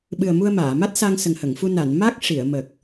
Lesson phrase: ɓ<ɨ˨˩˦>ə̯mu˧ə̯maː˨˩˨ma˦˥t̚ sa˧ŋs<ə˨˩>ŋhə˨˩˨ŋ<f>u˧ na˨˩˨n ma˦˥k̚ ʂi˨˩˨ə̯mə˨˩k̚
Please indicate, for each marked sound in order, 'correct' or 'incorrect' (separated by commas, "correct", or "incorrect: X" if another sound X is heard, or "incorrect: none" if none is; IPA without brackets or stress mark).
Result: incorrect: ɨ˨˩, correct, correct